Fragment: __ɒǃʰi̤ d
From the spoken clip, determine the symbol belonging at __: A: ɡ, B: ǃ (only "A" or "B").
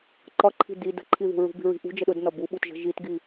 B